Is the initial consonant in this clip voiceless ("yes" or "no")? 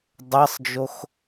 no